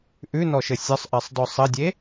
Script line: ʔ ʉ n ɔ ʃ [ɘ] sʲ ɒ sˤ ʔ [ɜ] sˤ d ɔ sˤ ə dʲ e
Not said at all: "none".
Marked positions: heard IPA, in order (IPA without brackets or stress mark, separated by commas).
ɘ, ɜ